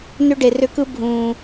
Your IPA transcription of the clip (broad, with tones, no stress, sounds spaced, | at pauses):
n ʏ˦ ɖ e˨ r ʏ˦ k ɯ˦ bʱ ũː˨